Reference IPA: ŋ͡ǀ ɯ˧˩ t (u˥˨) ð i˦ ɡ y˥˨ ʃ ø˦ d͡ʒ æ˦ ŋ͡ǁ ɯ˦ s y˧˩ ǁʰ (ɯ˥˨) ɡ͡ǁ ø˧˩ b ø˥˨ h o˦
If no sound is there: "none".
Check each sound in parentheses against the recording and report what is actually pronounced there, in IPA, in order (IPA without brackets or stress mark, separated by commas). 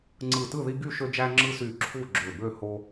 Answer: ɯ˥˨, u˥˨